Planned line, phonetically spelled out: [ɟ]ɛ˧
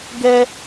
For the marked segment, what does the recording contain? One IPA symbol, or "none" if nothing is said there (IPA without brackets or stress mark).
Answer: ɡ